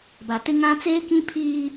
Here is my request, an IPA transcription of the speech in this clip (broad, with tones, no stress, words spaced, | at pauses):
ba˨tɪ˦ ŋã˦ t͡seː˦kĩ˦pʰiː˦